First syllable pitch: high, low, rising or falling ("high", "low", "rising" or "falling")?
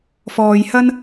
low